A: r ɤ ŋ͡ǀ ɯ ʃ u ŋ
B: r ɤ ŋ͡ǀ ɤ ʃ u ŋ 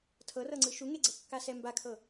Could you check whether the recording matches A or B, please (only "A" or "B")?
A